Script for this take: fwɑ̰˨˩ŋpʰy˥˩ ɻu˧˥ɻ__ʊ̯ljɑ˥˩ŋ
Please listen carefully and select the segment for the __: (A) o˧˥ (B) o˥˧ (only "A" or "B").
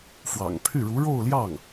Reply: B